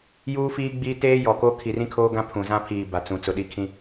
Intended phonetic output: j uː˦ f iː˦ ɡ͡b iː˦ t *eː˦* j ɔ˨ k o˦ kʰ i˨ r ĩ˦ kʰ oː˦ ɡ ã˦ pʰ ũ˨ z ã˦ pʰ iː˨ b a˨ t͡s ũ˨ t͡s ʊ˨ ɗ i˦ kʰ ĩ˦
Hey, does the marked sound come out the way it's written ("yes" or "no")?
yes